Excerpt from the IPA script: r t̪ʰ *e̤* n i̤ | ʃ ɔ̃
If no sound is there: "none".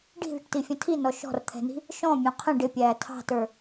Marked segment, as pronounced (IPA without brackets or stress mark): ɛ̤